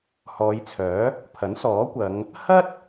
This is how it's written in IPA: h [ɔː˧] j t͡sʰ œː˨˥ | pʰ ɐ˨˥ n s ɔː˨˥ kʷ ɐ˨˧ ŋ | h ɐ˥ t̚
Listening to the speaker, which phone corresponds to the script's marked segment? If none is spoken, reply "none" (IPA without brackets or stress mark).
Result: ɔː˨˧